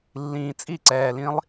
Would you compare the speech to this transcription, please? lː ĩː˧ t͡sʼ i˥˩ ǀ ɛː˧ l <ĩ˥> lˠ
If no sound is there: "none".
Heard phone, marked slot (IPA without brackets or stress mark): ĩ˥